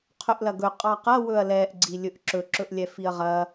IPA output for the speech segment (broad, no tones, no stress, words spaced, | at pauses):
qʰɵʔlɐɡɵ qʼɑqɐ wɵɐ̯lɛʔ ɡ͡ǀilʲɵʔǁɵ ǁɵʔlʲɛfiɐ̯ʁɐ